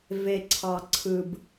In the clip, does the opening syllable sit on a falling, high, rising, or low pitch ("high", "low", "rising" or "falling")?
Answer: low